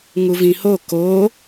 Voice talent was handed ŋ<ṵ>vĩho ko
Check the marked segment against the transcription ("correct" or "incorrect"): incorrect